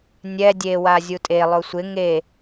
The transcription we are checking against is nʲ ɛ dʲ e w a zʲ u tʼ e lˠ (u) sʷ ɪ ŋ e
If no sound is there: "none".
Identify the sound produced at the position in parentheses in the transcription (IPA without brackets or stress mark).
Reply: o